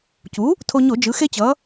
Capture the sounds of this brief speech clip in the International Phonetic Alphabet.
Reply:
c u˩˥ | tʰ o˧ ɲ o˧˩˧ d͡ʒ ɯ˩˧ x e˧ t͡ɕ ʌ˩˧

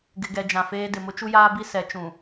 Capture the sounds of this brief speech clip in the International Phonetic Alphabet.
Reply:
ɡ ɪ˨ ɡ ɛ˨ d͡ʒ ã˨ f eː˦ d ɪ˨ m ʊ˦ t͡ʃ u˦ j aː˦ b i˦ s ɛ˨˦ t͡ʃ ũ˨

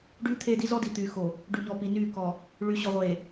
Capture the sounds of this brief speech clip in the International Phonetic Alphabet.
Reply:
ɖ yː˦ t̪ʰ eː˦ d i˦ z ɔ˦ d i˨ t̪ yː˨ x o˨ | ɖ y˨ ɲ ɔ˨ p i˨ n yː˦˨ k ɔ˨ | ɭ y˨ ɕ ɔ˨ ʁʷ eː˨

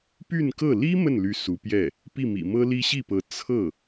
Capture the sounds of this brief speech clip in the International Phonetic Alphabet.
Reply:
p y˥˧ n k ɤ˥˩ l i˥ m ə˥˩ n l y˧˥ s u˧˥ p j ɛ˥˩ | p i˥˩ m ḭ˨˩ m ɤ˥ l i˥ ɕ i˥˩ p ɤ˧˥ t͡sʰ ɤ˥˩

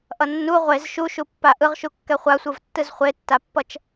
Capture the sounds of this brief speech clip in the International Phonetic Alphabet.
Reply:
ʔ ʌ nː u ʁʷ e z ʃ u ʃ u pː a ʔ ɯ ʁ ʃ u kː ɛ χʷ a sʷ ɯ v tː ɯ z χʷ e tː a pː ʌ t͡ʃ

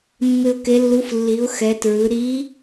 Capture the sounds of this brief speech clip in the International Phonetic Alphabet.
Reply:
mː ɪ˧ ʊ̯ k e˧˥ lː u˧˥ f lː i˩˧ ʊ̯ x ɛ˩˧ t ɹ ɯ˩˧ ɾ i˧˥

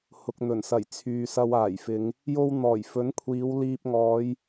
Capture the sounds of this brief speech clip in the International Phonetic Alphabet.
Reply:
h ʊ˨ k̚ n̪ ɵ˨˩ n s ɐ˨˩ j t͡sʰ yː˨ s ɐ˧ w aː˨˩ j f ɪ˨˧ ŋ | j o˧ w n̪ ɔː˨˩ j f ɵ˨˥ n kʷʰ iː˨˧ w l iː˧ p̚ ŋ ɔː˨˧ j

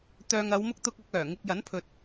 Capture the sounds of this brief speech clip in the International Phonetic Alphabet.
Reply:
t̪ œː˨ ŋ ɐ˨˧ w m ʊ˧ k̚ t̪ ʊ˧ k̚ ɐ˧ k̚ œː˨˩ ŋ ɪ˧ k̚ j ɐ˨˥ n pʰ ɵ˨ t̚

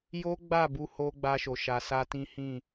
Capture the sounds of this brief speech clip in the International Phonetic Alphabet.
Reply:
j o˦ ɡ͡b a˦˨ b u˧ h o˧ ɡ͡b a˦ ʃ o˧ ʃ a˧ s a˦ t ĩ˦ h ĩ˦˨

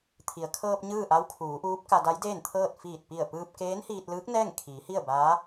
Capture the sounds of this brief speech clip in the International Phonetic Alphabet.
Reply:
t̪ʰ i˩ ə̯ kʰ ɤː˧ p̚ ɲ ɯː˥˨ ʔ a˧˥ w kʰ uː˩˧ ʔ uː˧˥ p̚ k a˧ d a˧˥ j d eː˥˨ n t̪ʰ ɤː˥˨ t̚ f iː˧˩ t̚ p i˧˩ ə̯ p ɯː˧ p̚ k eː˧˥ n h iː˧ t̚ l ɯː˧˥ k̚ n ɛː˥˨ ŋ kʰ iː˩˧ h i˥˨ ə̯ b aː˧˥

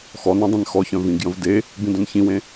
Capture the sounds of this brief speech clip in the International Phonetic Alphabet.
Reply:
x ɔ n œ̃ dˤ ẽ n x ɔ ç œ̃ v ĩ ɡ j ə̃ v d e | b ĩ d œ̃ n ç ĩ w ẽ

